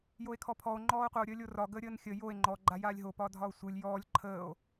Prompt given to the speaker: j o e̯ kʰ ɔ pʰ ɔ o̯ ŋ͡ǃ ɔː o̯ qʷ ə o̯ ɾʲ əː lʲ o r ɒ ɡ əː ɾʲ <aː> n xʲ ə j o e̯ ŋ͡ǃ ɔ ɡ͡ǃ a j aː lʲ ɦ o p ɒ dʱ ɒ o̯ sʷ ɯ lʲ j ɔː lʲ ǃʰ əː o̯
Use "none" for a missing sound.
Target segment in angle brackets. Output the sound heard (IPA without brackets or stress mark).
əː